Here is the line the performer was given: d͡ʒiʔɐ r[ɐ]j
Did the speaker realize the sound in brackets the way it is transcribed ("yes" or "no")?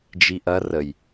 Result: no